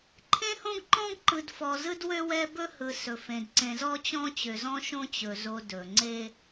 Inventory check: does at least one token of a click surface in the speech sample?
yes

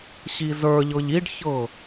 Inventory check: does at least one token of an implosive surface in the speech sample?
no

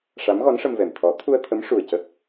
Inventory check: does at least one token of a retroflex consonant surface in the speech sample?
yes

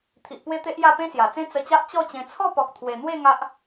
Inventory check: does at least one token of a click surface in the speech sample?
no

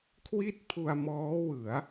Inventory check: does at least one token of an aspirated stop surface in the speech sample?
yes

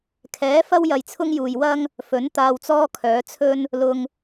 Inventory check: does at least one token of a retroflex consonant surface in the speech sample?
no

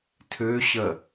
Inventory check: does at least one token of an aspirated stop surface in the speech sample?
yes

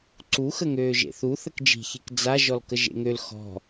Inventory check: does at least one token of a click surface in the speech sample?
yes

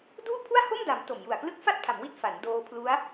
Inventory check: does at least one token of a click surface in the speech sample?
no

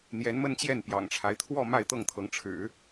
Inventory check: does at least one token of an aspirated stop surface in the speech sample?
yes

